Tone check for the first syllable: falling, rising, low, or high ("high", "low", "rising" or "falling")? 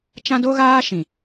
high